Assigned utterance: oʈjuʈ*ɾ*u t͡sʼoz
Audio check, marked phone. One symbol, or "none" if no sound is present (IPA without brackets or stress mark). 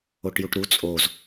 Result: ɾ